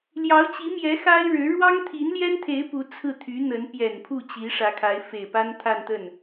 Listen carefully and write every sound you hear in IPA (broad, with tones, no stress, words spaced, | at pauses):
ljɑ˧˥ʊ̯t͡ɕi˧˥mjɛ˧˥ xa˥ɪ̯ɻɻ̩˧˥ ɻwɑ˥ŋt̪ʰi˧˥nljɛ˥nt̪ʰe˧˥ɪ̯ pu˧˥ t͡sʰɹ̩˥˩t̪ʰy˧˥n̪ə˧˥n pjɛ˨˩npʰu˥˩ t͡ɕi˧˥ʂä˧˥kʰa˧˥ɪ̯ fe˨˩ɪ̯pa˥nt̪ʰa˥˧nt̪ə˥˩n